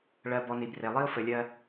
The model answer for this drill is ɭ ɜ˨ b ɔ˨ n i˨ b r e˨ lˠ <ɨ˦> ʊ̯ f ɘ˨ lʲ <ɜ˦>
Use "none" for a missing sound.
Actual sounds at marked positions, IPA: i˦, ɜ˦

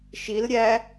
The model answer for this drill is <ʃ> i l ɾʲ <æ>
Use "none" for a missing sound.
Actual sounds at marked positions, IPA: ʃ, æ

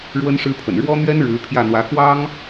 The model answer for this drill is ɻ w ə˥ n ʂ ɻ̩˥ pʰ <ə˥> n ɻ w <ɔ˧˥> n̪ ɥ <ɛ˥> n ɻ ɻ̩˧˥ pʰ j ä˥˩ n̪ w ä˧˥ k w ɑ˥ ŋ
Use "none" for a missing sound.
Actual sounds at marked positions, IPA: ə̰˨˩, ɔ˥, ɛ˥

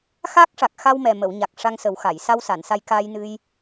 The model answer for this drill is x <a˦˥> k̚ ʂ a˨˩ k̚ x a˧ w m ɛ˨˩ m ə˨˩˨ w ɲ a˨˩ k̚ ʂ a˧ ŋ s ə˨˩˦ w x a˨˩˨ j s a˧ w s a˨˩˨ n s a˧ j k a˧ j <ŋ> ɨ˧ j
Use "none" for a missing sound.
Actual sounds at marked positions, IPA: a˦˥, n

